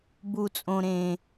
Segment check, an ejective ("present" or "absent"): present